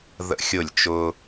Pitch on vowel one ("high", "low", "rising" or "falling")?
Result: falling